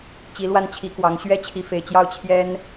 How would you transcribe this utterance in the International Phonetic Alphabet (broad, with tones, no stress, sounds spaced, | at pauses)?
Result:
t͡ɕ i˨˦ l w a˥˨ n t͡ɕʰ i˨˦ k w ɑ˨˦ ŋ ɕ ɥ ɛ˦ t͡ɕʰ i˨˦ f e˨˩ ɪ̯ t͡ɕ j ɑ˥˨ ʊ̯ t͡ɕʰ j ɛ˦ n